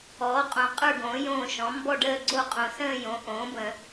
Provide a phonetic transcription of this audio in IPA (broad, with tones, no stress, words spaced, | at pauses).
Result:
ɔː˩˥qʼõ˨˩˦ qʼə˞˥˨ɡõː˩˥ jõː˥˨ ʃɔ̃˩˥mbɔ˥˨ɖəː˥˨ ɡ͡ǀo˥˨qʼõ˨˩˦sə̃ː˥˨ jõ˩˥ ʔõː˩˥bə̃˨˩˦